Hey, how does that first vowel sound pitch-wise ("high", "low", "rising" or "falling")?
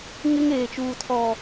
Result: high